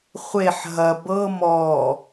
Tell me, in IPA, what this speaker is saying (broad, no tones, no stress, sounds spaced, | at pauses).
χʷ e ħ ɦ ɐ b ɤ m ɔ